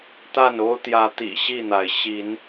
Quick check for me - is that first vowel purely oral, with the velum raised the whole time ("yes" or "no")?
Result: yes